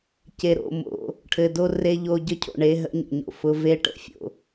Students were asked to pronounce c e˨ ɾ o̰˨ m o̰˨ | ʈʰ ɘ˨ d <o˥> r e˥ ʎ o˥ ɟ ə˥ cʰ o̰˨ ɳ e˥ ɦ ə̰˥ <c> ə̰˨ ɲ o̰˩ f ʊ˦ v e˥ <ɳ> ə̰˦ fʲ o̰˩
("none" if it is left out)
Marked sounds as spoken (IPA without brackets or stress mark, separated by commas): o˥, ɲ, ʈ